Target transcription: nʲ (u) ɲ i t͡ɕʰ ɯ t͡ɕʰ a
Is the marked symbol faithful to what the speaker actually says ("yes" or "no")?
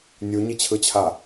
yes